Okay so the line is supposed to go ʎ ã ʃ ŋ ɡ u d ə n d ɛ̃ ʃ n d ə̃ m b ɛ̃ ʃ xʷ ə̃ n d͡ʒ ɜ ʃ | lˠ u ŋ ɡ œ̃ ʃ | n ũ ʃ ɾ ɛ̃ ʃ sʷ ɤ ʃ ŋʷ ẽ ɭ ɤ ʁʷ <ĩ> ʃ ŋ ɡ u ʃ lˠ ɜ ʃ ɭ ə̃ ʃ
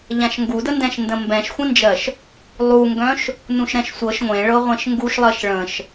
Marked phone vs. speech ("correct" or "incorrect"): incorrect